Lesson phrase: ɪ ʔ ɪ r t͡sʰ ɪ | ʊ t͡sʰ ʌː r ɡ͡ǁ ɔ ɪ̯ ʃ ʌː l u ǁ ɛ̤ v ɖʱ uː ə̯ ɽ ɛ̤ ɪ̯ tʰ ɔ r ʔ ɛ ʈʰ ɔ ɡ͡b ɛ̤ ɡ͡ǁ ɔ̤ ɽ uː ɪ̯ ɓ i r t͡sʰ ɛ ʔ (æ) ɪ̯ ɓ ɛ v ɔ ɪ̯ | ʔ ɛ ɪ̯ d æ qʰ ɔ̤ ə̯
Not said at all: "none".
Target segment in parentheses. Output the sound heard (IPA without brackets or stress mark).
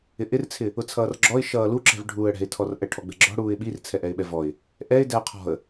ɛ